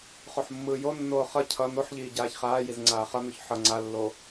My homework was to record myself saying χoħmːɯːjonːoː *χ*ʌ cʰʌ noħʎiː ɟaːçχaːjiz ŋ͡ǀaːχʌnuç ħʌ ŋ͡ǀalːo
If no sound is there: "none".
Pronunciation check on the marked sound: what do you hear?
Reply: χ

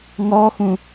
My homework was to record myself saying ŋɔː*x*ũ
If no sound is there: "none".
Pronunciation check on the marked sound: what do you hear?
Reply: x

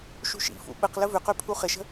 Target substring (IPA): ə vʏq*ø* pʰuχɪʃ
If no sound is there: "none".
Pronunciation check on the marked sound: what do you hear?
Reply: ø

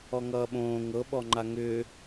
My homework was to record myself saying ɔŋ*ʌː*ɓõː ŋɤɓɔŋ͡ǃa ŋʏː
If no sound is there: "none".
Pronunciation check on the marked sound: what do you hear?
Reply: ʌː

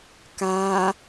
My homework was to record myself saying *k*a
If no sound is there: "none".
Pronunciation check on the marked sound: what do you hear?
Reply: k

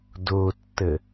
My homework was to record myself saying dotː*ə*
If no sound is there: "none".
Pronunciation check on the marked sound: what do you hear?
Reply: ə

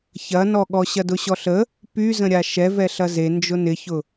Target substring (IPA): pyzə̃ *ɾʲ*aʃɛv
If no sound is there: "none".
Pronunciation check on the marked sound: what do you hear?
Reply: ɾʲ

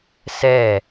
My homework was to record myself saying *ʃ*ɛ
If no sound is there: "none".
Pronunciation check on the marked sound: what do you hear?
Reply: s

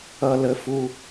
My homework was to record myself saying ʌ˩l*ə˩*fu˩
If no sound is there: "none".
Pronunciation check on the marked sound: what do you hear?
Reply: ə˩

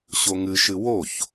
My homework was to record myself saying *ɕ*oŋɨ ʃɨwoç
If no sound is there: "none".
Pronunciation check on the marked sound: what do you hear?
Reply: ɕ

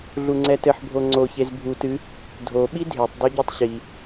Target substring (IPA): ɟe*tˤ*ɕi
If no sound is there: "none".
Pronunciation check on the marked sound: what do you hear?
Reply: tˤ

